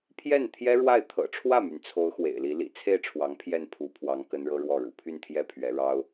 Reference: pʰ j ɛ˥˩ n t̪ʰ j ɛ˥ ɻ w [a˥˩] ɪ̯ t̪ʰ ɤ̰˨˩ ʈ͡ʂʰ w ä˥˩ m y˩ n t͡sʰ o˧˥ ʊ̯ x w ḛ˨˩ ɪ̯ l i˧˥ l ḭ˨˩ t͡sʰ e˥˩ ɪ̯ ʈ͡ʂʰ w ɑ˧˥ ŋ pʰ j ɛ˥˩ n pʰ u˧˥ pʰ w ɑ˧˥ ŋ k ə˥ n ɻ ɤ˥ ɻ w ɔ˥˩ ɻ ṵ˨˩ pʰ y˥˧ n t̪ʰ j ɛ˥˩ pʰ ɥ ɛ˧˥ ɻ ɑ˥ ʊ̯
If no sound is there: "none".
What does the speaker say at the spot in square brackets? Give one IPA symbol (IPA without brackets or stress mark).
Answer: a˥˩